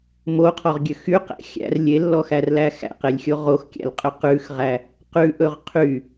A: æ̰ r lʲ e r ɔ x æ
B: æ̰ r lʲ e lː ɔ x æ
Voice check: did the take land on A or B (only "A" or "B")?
B